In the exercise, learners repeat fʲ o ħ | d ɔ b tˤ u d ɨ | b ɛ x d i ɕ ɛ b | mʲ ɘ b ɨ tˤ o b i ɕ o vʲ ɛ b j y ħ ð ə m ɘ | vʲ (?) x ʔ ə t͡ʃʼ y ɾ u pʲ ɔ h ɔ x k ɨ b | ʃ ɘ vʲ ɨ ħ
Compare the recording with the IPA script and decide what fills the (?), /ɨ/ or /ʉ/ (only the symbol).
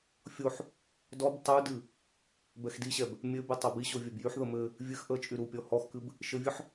ɨ